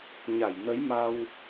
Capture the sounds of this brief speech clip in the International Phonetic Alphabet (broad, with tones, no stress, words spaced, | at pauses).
ɲa˧˩jnə˨˦jma˧w